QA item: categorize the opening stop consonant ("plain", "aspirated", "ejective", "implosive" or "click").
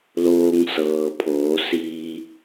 aspirated